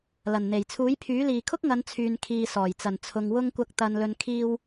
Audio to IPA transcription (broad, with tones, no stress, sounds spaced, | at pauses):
l ɐ˨˩ n n̪ e˨˩ j t͡sʰ uː˨˥ j pʰ yː˨˥ l iː˨ kʰ ʊ˥ k̚ ŋ ɐ˨˧ n t͡sʰ yː˨ n kʰ iː˨ s ɔː˨˩ j t͡s ɐ˨˩ n t͡sʰ ʊ˨ ŋ w ʊ˧ ŋ kʷ ɐ˨˥ k̚ t̪ ɐ˨ n l ɵ˨ n kʰ iː˧ w